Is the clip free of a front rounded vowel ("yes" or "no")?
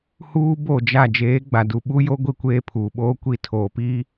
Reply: yes